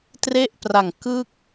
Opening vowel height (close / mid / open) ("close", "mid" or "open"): mid